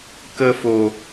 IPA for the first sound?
k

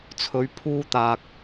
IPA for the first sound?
t͡sʰ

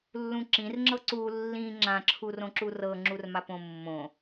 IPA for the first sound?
lː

